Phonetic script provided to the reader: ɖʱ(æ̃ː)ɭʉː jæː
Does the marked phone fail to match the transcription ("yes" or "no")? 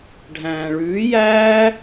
no